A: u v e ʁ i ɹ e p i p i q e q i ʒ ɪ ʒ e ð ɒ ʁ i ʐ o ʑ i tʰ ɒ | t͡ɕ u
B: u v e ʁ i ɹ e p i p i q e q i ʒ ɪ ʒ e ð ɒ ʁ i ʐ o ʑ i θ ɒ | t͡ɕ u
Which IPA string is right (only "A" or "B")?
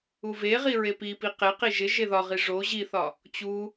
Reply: B